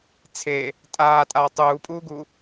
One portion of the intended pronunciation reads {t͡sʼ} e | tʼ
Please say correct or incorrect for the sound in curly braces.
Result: incorrect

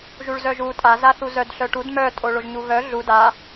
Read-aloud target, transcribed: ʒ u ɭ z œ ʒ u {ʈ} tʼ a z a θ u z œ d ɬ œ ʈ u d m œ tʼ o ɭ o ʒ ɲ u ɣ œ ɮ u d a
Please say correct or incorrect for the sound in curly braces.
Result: incorrect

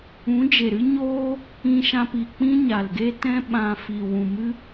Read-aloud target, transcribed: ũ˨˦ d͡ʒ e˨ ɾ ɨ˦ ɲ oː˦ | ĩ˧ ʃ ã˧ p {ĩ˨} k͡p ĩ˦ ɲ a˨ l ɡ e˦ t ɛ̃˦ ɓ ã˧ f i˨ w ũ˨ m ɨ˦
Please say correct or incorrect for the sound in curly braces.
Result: incorrect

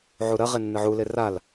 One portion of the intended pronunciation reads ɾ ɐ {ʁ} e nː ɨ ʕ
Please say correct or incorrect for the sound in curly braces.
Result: correct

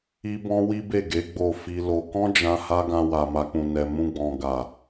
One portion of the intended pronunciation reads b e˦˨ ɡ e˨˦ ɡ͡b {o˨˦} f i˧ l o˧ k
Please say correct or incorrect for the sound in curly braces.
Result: incorrect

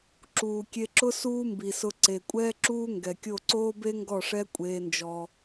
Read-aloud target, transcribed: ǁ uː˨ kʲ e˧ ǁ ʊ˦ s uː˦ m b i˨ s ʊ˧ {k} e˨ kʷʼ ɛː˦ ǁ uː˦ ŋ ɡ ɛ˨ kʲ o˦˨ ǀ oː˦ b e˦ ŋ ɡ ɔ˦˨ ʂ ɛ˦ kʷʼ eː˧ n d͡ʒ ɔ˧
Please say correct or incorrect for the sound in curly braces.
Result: incorrect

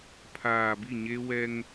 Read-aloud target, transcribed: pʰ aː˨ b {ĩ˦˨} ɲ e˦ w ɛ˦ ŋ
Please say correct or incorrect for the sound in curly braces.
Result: incorrect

